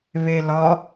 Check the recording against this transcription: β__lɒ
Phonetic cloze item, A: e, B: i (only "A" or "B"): A